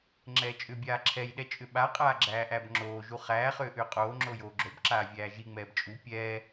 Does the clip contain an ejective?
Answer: yes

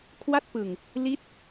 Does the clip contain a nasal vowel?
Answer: no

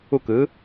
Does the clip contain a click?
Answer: no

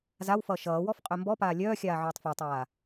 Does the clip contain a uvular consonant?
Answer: yes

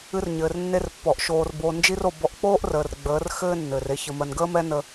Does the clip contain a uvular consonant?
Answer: no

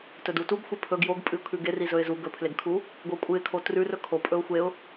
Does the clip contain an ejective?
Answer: yes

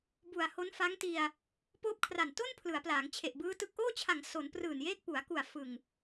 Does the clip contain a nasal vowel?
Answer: no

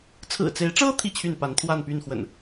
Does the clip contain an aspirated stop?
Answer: yes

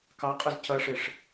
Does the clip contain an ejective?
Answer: yes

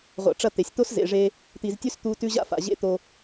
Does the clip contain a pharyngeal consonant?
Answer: no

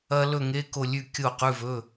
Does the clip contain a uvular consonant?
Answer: yes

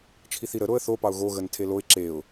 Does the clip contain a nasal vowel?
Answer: no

